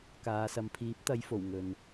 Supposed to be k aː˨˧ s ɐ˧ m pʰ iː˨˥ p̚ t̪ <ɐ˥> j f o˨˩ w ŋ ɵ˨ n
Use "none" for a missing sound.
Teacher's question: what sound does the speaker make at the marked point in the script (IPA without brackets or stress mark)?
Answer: ɐ˨˧